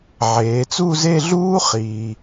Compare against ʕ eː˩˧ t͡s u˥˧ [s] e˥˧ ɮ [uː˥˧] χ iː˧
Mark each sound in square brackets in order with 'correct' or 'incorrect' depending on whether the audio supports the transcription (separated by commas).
incorrect, incorrect